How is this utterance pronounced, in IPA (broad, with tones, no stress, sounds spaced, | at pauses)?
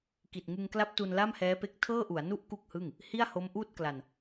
k i˨˩ t̚ ŋ ɯ˧ ŋ k l a˦˥ p̚ t u˧ n l a˥˩ m h ɛː˦˥ p e˦˥ k̚ tʰ ɤː˥˩ ʔ u˩˦ a̯ n u˥˩ ʔ k u˥˩ k̚ h ɯ˥˩ ŋ | h i˥˩ a̯ h o˦˥ m ʔ uː˥˩ t̚ k l a˧ n